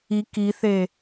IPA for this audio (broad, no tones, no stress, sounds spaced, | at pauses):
i k i θ e